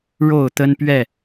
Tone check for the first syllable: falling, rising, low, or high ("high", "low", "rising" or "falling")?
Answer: falling